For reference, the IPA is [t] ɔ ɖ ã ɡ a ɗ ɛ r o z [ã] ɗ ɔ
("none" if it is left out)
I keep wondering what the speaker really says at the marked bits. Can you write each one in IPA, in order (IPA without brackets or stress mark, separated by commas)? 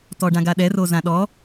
t, ã